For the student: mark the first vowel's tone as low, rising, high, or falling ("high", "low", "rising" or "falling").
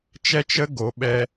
high